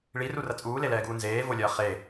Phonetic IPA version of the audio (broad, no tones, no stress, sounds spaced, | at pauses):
ɭ i r u r ɐ t͡sʼ uː l e l ɛː ɡ uː n z eː v o lʲ ɐː χ e